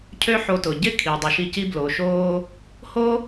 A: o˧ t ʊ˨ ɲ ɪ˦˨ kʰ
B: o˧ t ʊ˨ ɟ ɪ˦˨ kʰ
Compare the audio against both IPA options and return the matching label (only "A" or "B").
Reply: B